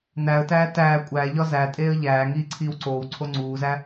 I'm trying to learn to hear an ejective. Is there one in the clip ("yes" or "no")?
yes